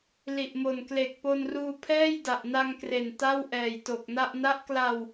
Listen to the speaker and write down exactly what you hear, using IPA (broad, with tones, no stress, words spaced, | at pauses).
li˨˩ʔmo˨˩nkle˨˩k̚ po˧nruː˧ pʰɛː˥˩jda˨˩ʔna˧ŋkre˨˩n ta˥˩w ʔɛː˨˩jto˨˩k̚na˥˩ʔ na˦˥ʔkla˧w